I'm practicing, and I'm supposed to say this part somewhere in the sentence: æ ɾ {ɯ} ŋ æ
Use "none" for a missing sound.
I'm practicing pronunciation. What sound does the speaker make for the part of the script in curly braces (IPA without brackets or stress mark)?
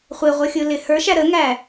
ə